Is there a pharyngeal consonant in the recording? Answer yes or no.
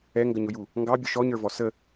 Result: no